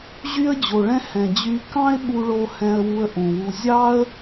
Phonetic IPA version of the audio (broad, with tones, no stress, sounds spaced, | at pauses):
ʑ y˥ ə̯ d͡ʑ o˩ ɭ ɛ̃˥ h ɛ̃˩ d͡ʑ y˧ k ɑ̃˥ ɪ̯ ɓ u˧ ɭ o˧ h ɛ̃˧ ə̯ w u˧ ə̯ ʔ ũ˩ w u˧ zʲ ɑ˥ ə̯